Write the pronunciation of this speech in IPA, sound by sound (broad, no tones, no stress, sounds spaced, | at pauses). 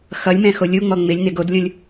x ʌ lʲ m ɛ̃ x o lʲ u ŋ͡m ɔ ŋ͡m ɪ lʲ n ɪ ɡ o d lʲ õ lʲ